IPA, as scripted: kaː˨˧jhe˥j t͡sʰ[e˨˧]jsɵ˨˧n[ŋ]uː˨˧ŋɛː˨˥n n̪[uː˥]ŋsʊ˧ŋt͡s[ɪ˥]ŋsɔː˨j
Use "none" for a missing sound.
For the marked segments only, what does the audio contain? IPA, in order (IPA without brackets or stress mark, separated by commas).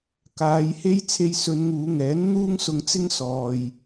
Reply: e˧, ŋ, uː˥, ɪ˥